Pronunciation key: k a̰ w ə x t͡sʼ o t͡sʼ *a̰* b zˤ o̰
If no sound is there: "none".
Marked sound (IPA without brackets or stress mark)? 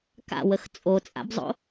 a̰